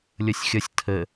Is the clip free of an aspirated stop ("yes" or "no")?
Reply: no